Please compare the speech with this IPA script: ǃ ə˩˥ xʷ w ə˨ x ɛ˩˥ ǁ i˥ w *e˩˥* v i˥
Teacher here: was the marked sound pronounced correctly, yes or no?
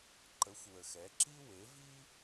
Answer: yes